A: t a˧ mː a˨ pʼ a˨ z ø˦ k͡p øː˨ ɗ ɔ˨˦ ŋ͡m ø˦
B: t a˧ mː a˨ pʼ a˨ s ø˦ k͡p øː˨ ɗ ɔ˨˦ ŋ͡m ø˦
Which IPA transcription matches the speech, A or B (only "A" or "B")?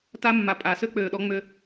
B